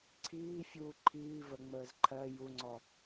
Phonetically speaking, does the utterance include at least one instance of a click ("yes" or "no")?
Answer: yes